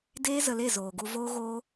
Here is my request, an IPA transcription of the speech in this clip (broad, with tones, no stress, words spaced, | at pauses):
deː˦ zə˧le˦˨zoː˨ɡu˧ voː˦ɣoː˦